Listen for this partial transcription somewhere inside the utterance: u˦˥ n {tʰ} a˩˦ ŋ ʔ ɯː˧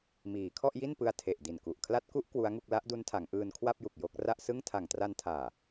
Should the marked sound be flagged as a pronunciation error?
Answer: no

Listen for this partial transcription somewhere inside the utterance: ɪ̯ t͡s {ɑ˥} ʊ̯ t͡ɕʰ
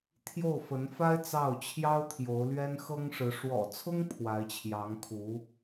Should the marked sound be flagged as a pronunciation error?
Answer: yes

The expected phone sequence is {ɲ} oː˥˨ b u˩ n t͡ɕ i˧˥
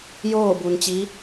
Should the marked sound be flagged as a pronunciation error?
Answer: yes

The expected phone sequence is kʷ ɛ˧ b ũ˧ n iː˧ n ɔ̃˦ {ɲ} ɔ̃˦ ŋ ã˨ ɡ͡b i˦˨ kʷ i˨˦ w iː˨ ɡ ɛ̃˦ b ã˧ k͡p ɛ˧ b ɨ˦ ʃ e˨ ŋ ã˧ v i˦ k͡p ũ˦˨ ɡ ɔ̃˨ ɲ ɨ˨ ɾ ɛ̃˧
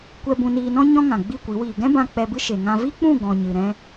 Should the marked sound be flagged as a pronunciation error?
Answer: no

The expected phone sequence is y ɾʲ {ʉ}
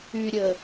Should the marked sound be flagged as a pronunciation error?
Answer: yes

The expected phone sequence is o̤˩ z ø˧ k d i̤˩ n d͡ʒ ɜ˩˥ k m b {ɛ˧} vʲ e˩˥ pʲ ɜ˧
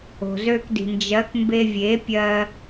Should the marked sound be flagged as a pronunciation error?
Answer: yes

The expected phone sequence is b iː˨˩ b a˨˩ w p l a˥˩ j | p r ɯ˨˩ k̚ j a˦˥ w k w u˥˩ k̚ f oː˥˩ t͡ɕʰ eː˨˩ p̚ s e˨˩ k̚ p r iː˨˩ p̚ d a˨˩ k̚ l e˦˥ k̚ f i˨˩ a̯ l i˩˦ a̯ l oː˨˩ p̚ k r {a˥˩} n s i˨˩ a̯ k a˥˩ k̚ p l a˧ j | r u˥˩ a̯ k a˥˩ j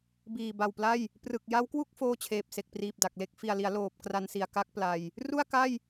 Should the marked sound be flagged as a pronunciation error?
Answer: yes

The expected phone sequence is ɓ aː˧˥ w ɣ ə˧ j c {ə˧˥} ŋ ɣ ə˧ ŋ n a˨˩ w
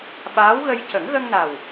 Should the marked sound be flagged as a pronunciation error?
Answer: yes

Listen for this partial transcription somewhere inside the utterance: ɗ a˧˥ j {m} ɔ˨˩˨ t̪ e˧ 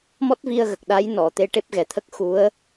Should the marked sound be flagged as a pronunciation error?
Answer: yes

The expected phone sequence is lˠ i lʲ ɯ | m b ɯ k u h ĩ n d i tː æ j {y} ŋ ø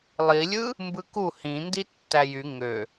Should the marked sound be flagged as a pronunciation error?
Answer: no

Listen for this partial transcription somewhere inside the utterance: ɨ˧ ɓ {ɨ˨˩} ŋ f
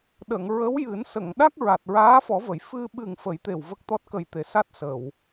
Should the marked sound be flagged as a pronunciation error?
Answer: no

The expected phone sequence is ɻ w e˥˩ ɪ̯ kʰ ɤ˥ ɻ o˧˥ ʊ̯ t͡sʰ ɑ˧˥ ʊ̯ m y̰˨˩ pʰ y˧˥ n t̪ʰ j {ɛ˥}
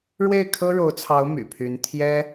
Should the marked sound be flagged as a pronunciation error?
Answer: no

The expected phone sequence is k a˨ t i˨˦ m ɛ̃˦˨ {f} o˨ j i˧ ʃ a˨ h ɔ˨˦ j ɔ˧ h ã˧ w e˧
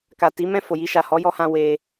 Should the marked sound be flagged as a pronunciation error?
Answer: no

